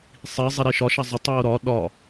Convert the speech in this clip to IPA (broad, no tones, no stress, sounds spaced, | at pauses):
sˤ i zˤ i ɾ i ʃ ɒ ʃ a zˤ ə tˤ u o̯ ɾ ɒ ɗ ɒ